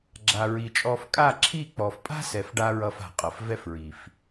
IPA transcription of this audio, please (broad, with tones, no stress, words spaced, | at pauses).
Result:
ɡ͡ǁa˨ɹi˨t͡ʃʼɔ˧f kʼa˦˨ǁʰi˦˨k͡pɔ˨f pʼa̤˦ sɛ˨f ɖa˦ɹʌ˧fa̤˨ qʼʌ˨fvɛ˦fɹi˨f